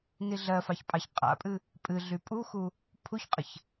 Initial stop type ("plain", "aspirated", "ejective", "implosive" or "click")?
ejective